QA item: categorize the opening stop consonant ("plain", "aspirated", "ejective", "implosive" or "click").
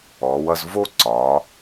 click